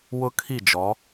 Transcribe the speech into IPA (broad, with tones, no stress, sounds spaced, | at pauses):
w ʊ˦ kʰ i˦˨ d͡ʒ ɔ˨˦